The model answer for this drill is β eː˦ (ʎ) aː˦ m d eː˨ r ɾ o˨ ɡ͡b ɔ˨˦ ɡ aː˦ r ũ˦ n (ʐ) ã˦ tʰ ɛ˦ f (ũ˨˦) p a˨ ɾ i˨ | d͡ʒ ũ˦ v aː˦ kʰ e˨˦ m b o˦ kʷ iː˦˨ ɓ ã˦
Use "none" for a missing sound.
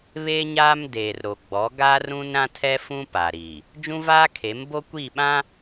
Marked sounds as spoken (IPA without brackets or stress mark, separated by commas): ɲ, ɾ, ũ˦